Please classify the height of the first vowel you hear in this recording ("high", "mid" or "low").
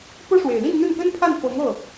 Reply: mid